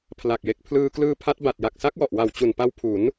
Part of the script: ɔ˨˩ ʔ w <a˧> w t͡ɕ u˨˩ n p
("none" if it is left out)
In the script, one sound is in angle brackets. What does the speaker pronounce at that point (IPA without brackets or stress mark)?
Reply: a˨˩